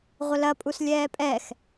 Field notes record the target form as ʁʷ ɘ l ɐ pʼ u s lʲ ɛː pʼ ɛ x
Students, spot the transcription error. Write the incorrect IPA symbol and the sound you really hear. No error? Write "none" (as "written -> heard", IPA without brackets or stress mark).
none